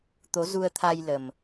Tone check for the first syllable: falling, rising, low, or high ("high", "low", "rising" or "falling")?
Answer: rising